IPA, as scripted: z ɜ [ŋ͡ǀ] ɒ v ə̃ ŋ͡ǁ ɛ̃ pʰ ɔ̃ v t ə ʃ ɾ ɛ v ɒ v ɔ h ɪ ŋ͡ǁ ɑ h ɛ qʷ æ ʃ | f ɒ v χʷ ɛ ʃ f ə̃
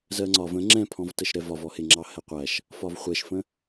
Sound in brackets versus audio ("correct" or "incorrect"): correct